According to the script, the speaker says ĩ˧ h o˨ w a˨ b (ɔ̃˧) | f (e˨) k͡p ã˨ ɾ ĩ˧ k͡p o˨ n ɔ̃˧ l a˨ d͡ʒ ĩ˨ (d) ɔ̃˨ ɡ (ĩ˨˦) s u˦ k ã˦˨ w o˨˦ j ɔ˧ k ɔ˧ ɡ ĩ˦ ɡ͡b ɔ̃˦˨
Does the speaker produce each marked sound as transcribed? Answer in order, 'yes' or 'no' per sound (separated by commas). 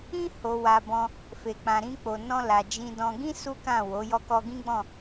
yes, yes, yes, no